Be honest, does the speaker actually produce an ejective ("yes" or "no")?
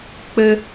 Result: no